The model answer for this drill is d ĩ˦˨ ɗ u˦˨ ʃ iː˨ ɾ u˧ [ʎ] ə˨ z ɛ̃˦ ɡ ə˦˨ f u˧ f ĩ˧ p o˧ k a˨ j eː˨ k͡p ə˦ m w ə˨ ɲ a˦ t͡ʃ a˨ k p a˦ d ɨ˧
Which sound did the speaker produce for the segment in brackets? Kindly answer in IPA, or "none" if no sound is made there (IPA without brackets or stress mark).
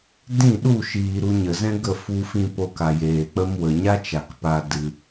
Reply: ɲ